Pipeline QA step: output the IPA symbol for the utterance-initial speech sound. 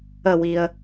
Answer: ə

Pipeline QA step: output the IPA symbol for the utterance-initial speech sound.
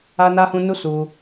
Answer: a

